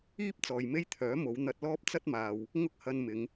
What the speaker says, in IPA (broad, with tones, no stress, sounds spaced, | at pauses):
iː˥ p̚ t͡s ɔː˨ j m e˥ j t̪ʰ œː˨˥ m o˨˧ w n̪ ɐ˧ t̚ l ɔː˥ p̚ t͡s ɐ˥ t̚ m aː˨ w | ŋ ʊ˥ k̚ h ɐ˧ n m ɪ˨˧ ŋ